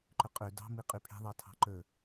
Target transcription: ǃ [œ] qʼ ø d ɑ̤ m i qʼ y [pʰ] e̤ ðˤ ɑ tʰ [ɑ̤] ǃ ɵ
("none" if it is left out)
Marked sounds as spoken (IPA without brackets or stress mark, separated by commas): ɵ, pʰ, ɑ̤